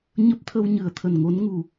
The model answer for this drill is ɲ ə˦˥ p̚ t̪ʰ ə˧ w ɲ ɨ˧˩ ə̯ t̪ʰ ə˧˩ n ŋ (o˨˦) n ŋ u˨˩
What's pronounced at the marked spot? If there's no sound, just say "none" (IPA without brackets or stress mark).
o˨˦